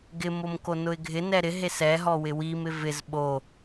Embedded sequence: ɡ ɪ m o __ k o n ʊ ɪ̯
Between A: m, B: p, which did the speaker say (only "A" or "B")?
A